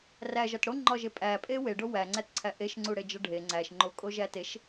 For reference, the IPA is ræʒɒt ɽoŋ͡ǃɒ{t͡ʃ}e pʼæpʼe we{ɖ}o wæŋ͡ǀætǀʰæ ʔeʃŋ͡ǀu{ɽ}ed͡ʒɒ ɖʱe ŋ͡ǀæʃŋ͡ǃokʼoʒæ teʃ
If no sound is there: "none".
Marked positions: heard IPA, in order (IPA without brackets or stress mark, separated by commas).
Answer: ʒ, ɖ, ɽ